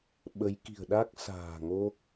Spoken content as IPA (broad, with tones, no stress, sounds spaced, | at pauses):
ɓ ə˨˦ j k i̤˨˩ ə̯ ɗ a˦˥ k̚ s a̤ː˨˩ ŋ o˦˥ k̚